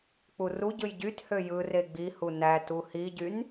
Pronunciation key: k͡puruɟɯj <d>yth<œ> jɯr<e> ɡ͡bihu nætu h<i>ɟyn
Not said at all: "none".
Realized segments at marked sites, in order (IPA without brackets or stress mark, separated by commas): ɟ, ø, e, i